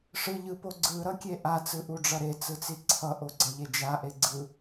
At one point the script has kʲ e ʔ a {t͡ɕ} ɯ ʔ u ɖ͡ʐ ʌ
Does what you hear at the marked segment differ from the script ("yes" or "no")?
yes